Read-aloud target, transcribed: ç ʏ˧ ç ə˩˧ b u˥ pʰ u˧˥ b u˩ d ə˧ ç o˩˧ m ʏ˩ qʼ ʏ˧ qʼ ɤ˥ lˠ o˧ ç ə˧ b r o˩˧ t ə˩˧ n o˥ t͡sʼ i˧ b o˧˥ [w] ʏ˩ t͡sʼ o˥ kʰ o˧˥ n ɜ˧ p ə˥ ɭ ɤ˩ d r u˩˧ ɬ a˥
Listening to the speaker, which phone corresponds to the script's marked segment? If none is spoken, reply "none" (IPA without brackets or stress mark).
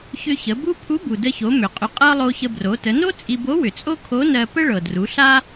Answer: w